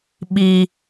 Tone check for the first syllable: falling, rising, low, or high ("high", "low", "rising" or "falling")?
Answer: low